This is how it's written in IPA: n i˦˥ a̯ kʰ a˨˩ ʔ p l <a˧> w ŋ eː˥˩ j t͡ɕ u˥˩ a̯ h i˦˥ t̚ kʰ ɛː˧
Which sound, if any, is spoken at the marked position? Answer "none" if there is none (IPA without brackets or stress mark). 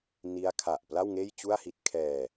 a˥˩